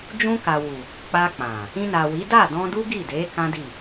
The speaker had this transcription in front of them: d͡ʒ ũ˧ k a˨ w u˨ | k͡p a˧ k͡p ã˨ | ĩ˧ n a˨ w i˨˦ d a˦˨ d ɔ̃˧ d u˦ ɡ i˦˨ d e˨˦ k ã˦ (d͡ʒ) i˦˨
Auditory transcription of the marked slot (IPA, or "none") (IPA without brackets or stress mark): d